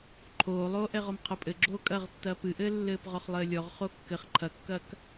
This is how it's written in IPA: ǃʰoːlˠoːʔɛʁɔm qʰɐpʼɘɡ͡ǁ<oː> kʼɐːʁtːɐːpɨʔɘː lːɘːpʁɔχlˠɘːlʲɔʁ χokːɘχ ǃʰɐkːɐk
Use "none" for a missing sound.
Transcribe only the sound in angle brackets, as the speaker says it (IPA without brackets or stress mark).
oː